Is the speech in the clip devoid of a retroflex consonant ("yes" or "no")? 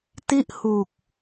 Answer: yes